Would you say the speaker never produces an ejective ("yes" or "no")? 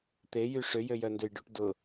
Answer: yes